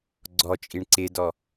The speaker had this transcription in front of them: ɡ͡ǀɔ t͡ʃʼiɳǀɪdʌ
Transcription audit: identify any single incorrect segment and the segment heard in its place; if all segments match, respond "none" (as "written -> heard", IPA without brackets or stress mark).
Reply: ʌ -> ɔ